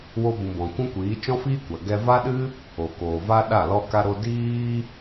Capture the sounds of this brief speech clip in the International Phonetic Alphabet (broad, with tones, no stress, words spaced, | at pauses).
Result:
wo˧bũ˨ bɔ̃˨kʷũ˦kʷiː˨˦ t͡ʃɔ̃˦fiː˦kʷa˨ ɡɛ˧va˦ɗɨ˦ | o˨koː˨va˦ɗa˦˨ lɔ˦ka˦ ɾo˧ diː˧